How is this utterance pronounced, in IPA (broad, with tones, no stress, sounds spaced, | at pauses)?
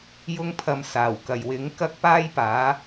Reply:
j ʊ˥ ŋ pʰ ɐ˧ m s aː˨˩ w k ɐ˨ j w ɪ˨˥ ŋ k ɐ˥ k̚ p aː˥ j p aː˨˥